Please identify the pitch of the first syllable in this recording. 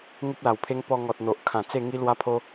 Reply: high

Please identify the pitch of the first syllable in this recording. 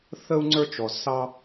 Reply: high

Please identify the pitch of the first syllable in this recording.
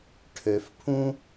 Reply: low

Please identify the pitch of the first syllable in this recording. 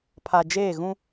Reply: low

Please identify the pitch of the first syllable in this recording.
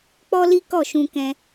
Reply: high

